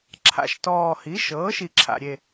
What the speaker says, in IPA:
ǁʰa̰˨˩ʃtɔː˨˩ hi˩˥ʃɤː˩˥ ʃi˨˩ǁʰa̰˨˩ɾʲe˨˩

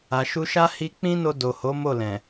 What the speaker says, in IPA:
a˨ʃu˧ʃa˦ hi˧k͡pĩ˦no˧ do˨ho˨˦mo˦˨lɛ̃˨

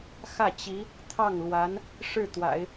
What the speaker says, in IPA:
xä˥˩t͡ɕi˧˥ | t̪ʰɑ˥˩ŋlwa˧˥n | ʂɻ̩˥˩t̪wa̰˨˩˦ɪ̯

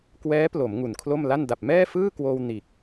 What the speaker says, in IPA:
kwɛː˦˥plo˩˦m ŋu˨˩nkʰlo˥˩m la˥˩n da˨˩p̚mɛː˥˩fɯː˥˩kwoː˧w niː˨˩k̚

